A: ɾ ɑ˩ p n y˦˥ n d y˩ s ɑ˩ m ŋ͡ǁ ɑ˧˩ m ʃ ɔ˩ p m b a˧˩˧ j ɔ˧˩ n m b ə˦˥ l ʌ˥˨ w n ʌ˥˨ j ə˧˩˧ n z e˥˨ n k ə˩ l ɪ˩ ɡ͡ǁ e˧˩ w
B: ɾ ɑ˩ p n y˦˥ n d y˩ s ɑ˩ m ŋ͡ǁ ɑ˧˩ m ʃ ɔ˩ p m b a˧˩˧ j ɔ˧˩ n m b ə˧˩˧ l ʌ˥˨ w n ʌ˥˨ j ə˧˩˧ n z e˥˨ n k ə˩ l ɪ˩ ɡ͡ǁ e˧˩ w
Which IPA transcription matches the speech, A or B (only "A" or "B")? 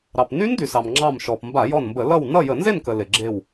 B